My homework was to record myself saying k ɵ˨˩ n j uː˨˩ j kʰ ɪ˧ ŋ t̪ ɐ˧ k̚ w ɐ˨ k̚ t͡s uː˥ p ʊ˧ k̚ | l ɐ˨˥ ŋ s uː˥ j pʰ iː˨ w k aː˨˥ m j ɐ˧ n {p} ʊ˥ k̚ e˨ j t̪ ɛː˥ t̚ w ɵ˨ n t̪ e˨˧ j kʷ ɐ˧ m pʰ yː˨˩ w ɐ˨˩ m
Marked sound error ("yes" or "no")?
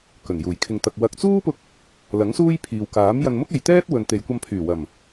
yes